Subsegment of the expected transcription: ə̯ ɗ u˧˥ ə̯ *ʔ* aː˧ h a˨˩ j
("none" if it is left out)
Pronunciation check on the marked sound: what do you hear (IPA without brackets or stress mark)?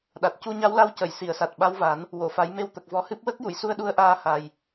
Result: ʔ